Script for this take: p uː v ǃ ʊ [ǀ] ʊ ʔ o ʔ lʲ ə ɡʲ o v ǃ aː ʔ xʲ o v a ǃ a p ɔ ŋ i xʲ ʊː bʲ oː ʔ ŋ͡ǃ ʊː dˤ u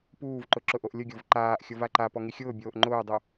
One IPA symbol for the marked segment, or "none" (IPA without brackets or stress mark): ǁ